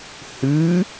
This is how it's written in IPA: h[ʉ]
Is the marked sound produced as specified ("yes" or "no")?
no